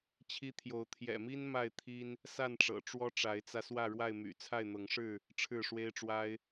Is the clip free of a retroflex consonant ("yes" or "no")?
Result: no